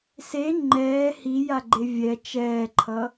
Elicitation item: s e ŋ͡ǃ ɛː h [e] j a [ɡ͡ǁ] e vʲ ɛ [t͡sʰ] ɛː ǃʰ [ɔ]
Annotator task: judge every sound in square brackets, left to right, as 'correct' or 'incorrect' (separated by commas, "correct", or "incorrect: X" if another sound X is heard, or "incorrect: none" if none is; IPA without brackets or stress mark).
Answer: incorrect: i, incorrect: ɡ͡ǃ, incorrect: t͡ʃ, incorrect: ʌ